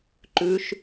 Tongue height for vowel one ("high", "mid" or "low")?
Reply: high